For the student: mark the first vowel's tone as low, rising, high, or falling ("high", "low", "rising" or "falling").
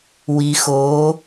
low